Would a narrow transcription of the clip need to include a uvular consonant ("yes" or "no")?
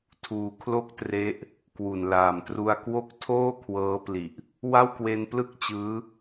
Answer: no